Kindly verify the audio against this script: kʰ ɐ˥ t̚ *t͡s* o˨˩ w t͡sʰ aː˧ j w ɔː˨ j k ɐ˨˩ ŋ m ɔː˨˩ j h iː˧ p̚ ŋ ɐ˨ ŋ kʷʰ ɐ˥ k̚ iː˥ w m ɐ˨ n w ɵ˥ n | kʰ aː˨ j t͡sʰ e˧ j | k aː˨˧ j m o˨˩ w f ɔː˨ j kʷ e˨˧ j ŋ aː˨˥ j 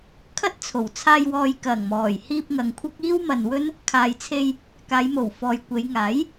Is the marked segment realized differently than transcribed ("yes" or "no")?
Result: yes